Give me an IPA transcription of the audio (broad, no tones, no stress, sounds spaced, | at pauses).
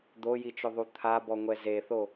d̪ o j i t͡ʃ ʊ ðˤ u t̪ʰ a b ɔ ŋʷ ɛ z e θ o